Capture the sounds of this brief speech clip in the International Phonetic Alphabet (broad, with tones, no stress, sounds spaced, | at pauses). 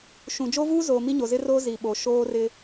ʃ ũ˨ d͡ʒ o˦ v uː˦ z oː˨ m i˦ ɲ o˨ z ɪ˦ r oː˦ z i˨ ɓ o˨ ʃ oː˦ r ɪ˦